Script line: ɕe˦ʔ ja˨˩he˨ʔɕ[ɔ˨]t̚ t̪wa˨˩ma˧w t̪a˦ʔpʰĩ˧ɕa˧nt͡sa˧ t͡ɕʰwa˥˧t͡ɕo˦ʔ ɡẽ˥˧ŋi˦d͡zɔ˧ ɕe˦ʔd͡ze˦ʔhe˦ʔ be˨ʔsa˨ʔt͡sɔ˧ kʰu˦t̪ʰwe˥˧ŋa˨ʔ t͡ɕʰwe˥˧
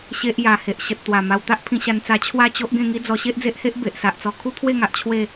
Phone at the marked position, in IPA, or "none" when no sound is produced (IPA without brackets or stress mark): ə˨